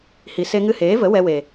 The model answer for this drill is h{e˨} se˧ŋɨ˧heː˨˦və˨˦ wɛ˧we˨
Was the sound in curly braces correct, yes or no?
no